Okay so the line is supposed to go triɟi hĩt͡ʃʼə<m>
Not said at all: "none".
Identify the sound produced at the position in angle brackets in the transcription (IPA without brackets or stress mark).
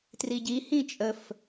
f